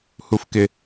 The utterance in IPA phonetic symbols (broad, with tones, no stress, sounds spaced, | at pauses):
h u˩ f k ɪ˩